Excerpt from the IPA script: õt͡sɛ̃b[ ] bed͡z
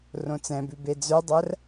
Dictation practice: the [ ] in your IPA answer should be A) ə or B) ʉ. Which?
B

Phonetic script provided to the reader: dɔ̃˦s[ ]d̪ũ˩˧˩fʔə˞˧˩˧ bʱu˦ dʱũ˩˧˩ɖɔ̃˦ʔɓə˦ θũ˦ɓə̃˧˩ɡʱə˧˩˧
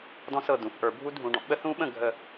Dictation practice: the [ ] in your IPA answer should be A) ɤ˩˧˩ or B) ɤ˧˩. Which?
B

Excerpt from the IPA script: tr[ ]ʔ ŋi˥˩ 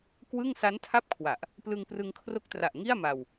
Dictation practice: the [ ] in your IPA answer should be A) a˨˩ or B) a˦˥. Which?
A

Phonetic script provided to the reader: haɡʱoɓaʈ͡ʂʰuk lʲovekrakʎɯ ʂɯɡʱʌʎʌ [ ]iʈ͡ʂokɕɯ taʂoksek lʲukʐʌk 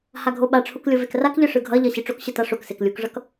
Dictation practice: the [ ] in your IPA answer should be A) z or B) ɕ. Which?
B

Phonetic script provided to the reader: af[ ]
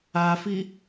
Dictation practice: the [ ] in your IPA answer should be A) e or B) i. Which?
B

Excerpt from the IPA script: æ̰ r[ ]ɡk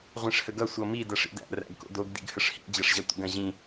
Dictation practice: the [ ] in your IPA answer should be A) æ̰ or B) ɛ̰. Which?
A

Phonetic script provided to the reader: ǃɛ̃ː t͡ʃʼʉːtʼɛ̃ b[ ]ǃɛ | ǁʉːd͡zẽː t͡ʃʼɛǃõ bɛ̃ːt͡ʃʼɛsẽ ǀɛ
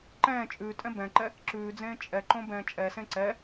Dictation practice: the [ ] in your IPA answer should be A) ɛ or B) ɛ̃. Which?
B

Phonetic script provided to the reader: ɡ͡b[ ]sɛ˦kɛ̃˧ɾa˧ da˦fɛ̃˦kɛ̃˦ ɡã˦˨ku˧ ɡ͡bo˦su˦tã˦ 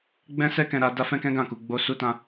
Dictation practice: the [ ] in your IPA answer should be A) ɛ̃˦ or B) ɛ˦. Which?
A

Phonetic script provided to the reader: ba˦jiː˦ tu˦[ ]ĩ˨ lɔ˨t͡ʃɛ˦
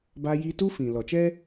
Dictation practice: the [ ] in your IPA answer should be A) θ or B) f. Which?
B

